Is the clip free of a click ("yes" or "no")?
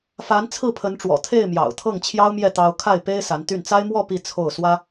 yes